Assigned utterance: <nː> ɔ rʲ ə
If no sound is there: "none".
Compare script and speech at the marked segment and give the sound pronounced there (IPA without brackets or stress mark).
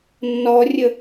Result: nː